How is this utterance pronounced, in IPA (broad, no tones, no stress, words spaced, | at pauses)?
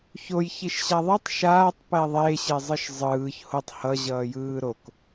çoj çiʃɕaðˤɛtˤ ʃaːtˤ pɛðˤe ɕezˤɯʃzˤɯːç hotˤ hʌ ʑʌːjɯːɾok